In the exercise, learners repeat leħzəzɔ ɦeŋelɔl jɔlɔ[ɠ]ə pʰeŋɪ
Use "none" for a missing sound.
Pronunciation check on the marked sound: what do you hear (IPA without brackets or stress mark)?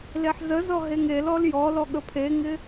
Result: ɠ